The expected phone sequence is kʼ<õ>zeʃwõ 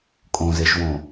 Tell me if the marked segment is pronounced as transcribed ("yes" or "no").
yes